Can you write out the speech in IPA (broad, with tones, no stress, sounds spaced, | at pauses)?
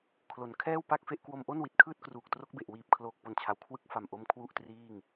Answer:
kʰ l o˩˦ n kʰ ɛː˥˩ w p a˥˩ k̚ f e˥˩ ʔ k w o˧ m ʔ o˥˩ n w i˨˩ t̚ kʰ ɯː˥˩ t̚ k r uː˨˩ k̚ t r o˦˥ k̚ b e˨˩ ʔ w iː˨˩ p̚ kʰ l oː˨˩ k̚ p o˨˩ n t͡ɕʰ a˩˦ w kʰ w ɯ˦˥ k̚ f a˨˩ m ʔ o˦˥ m kʰ w u˥˩ ʔ t r iː˥˩ ŋ